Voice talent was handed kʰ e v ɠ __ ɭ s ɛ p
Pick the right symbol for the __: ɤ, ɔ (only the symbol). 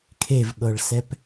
ɤ